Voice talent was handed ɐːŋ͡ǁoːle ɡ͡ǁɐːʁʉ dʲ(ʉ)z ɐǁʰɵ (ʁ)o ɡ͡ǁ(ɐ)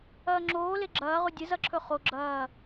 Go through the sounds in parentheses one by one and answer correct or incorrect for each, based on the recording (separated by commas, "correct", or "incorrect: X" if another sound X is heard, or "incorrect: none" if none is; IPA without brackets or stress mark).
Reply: incorrect: ɨ, incorrect: χ, incorrect: ɐː